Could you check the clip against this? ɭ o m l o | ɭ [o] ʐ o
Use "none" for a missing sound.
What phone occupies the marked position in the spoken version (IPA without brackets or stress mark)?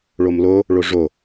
o